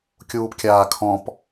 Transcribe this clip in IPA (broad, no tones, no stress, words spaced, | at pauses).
kʲuːpkʲaːkʰɔ̃p